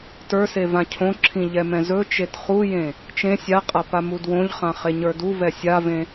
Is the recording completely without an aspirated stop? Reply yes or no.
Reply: no